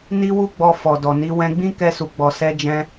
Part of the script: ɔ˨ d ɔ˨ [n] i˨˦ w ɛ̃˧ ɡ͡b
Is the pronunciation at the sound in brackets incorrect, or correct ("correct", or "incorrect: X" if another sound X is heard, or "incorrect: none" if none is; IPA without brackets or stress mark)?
correct